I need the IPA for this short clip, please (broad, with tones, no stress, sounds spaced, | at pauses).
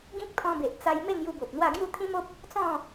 ɡ ĩ˦ k̚ t̪ʰ ɔ̃˧ b e˨ ʔ t͡s a˧ j m e˥˧ ŋ j u˧ b o˨ p̚ n̪ w a˥˧ ɡ j u˥˧ t̪ʰ ĩ˦ m o˦ p̚ | t͡s ɔ̃˥˧